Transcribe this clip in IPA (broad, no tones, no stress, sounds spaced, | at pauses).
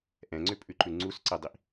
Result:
ʔ ɛ̃ ŋ͡ǀ ʏ pʼ ʉ ǃ ʉ ŋ͡ǀ u s ǀ e dˤ i ʔ